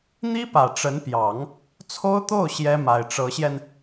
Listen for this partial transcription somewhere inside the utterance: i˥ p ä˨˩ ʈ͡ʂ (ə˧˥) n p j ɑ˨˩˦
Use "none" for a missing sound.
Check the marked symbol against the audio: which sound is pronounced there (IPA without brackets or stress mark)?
ə˧˥